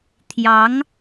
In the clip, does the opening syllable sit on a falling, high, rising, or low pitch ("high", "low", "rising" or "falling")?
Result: rising